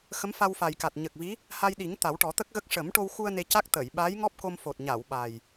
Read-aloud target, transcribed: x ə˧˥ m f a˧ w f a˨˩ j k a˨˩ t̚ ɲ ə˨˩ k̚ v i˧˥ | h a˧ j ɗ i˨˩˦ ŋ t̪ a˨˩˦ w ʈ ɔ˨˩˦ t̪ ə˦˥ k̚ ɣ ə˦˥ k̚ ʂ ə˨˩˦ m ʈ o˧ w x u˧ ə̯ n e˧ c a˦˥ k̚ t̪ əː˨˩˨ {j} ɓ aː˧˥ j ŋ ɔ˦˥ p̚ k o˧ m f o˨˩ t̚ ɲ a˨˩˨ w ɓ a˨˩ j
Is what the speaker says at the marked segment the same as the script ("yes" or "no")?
yes